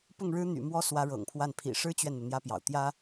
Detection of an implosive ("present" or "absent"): absent